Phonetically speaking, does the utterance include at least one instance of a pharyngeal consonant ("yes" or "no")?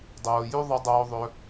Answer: no